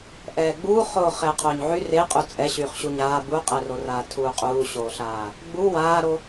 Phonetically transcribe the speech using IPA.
ʔɛːɡ͡buːχoː χɛːqʰoːɲʕy reqʼu t͡sʼɛɕyːχ ɕuɲaː buqʼɛroraː tʰuːqʼuːɕoːɬaː | ɡ͡bu waːɾo

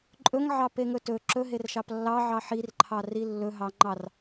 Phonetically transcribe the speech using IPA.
ǃʼɵŋʕɑpeŋɵ tɵ ǁɵɦerʃɑp lːɑʕɑ ħirǃʰɑri lːɵɦɑŋ͡ǃɑr

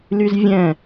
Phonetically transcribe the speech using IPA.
lyzvʲɛ̃

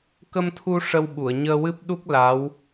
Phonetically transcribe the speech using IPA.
kə˧mt̪ʰu˧ ʂə˧wɓu˨˩˨ə̯ ɲəː˧wɨ˦˥p̚ ɗu˦˥k̚ la˧˥w

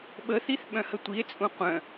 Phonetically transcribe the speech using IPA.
ɓəθiθ ɓœ̃hətʷie̯t͡sʼũ qʷœ̃

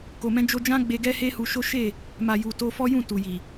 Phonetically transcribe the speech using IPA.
ko˨mɛ̃˧ d͡ʒo˧d͡ʒã˦ɡ͡be˧ ɡɛ˦he˦hu˧ʃo˦ ʃe˦˨ | ma˨ju˨ to˧fɔ˦jũ˦˨ tu˨ji˨

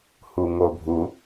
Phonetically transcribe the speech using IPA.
huŋobʱu

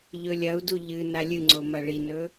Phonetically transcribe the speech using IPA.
ʎɵlʲɐu̯du ʎɨ nalʲɨŋ͡ǀo mɐɭinɵ

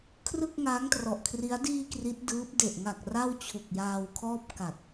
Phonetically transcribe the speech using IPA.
kʰrɯ˥˩k̚ŋaː˦˥ŋtrɔ˨˩ʔkʰri˦˥a̯ diː˧ kri˦˥t̚dɯː˦˥p̚ de˨˩ʔŋa˨˩k̚ ra˥˩w t͡ɕʰu˨˩k̚ jaː˧wkʰɔː˥˩p̚ ka˨˩t̚

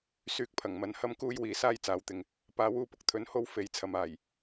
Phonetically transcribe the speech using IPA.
syː˧k̚pʰɐ˨˩ŋmɐ˨˥n hɐ˥mkuː˥jwiː˨ saː˥jt͡saː˨˥wt̪ɪ˨ŋ | paː˨˧wuː˧pʊ˨k̚t̪ʰɵ˨˧n ho˥wfe˨˥jt͡sʰɐ˨m aː˨˩j

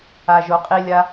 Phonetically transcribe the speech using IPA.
aʒoqʼilʲa

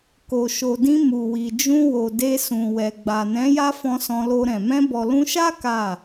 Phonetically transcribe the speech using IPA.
ko˨ʃo˨dĩ˧ mu˨wi˨d͡ʒũ˧ wo˨de˧ sũ˨wɛ˨ ɡ͡ba˨nɛ̃˨˦ ja˦fɔ̃˧ sɔ̃˧lo˧ɾɛ̃˨ mɛ̃˧bɔ˨lũ˧ʃa˦ ka˦˨

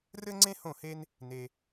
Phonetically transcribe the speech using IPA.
rɘ˥ŋ͡ǀẽ˥ hõ˥˩he˥n | ne˧

